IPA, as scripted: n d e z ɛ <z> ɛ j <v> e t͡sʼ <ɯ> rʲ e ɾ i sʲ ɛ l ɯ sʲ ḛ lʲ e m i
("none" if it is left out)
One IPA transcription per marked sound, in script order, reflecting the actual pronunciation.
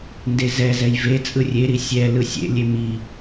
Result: z, v, ɯ

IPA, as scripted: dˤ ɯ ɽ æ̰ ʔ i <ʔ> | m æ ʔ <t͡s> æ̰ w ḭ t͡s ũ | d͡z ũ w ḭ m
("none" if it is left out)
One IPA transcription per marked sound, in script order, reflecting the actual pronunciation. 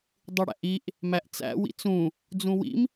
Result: ʔ, t͡s

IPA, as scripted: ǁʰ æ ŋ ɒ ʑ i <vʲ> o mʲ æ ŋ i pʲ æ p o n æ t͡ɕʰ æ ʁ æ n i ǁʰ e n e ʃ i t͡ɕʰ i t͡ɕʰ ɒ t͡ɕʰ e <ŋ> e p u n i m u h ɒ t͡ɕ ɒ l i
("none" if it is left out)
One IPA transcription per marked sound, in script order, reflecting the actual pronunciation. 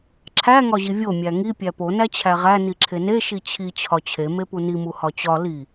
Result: vʲ, m

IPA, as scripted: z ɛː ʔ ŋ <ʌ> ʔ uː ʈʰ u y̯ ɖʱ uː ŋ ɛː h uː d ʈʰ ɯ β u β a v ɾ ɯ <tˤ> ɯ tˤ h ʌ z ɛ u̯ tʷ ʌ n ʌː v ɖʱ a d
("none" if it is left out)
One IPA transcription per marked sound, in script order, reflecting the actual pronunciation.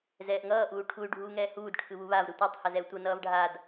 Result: ʌː, tʷ

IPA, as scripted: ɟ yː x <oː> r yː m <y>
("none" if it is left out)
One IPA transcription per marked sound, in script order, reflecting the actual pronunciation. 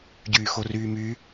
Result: o, y

